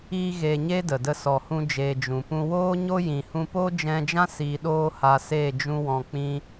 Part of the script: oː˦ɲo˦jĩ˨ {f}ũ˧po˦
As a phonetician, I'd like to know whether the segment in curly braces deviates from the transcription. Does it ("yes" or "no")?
yes